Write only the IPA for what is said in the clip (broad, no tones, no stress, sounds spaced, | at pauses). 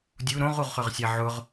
dʲ u ɾ õ ʁ u ʁ χ ʏ ʁ sʲ a ʕ ʊ ʁ